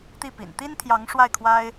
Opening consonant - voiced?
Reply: no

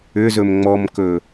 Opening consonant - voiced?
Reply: yes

